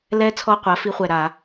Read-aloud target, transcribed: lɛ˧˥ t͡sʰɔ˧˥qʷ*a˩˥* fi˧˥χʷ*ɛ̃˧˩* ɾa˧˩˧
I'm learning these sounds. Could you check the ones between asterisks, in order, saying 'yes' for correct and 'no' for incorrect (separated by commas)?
yes, no